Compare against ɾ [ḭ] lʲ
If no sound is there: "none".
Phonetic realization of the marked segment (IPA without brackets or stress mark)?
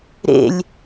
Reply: ḛ